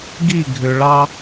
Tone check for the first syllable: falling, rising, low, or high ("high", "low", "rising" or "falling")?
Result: falling